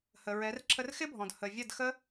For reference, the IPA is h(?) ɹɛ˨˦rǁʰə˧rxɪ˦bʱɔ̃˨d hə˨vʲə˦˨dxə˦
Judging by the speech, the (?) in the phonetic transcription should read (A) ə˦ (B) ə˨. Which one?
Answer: B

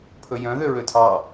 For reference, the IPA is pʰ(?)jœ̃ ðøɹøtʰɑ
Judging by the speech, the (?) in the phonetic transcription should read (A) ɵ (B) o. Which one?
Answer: A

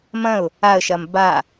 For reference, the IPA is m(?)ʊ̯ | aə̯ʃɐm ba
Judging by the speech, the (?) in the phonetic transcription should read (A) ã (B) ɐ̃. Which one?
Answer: B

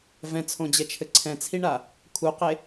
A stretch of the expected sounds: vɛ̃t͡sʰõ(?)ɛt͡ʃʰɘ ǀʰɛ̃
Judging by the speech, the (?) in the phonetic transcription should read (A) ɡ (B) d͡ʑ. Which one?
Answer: B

